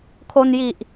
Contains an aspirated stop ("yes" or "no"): yes